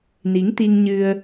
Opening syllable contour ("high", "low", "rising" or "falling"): rising